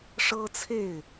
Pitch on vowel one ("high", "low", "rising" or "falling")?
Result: high